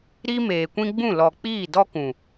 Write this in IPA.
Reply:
ɾi˦ meː˨kʷĩ˦ɡ͡bũ˦˨ lɔ˨k͡piː˦˨ dɔ˦kũ˨

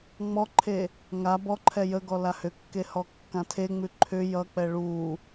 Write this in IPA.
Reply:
ŋ͡mɔǃʰe | ŋa bɔǃʰɛ jəɡɔ lahʏkːe hɔkːãtʰeŋ͡mʉ ǃʰʏ jʌk͡pɛ ɭu

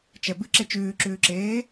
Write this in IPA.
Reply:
t͡ʃɛbɨǁe t͡ʃʉːǁʉːǁeː

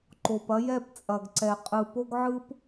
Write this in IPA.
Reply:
ǃo˨pɐ˦ jɛ˦˨pt͡sʼɐ˨ɡǀɛ˨ qʼɯ˨po˦ɡʕɯ˦p

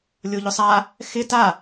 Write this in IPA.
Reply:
lʲoʎʊsˤa | xɪ ta

